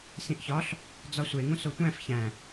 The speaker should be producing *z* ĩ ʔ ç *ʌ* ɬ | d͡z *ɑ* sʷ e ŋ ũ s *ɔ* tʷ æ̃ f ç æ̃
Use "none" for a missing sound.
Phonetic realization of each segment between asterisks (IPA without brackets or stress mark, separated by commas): s, ɒ, ɒ, o